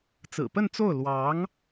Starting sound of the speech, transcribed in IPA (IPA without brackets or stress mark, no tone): t͡s